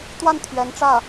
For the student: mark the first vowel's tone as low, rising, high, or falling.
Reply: falling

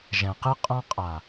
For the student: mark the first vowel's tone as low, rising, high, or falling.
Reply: low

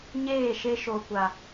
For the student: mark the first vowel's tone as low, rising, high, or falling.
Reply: falling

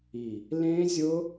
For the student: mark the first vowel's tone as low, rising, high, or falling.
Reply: low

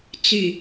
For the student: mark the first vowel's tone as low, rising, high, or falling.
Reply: low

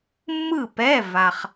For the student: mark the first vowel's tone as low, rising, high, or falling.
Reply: falling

